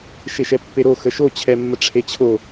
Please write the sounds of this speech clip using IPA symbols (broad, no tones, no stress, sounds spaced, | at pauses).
ʃ e ʃ ɛ pː e ɾ o x ə ʃ o t͡ɕʰ ɛ mː ə ʈ͡ʂʰ e t͡ɕʰ o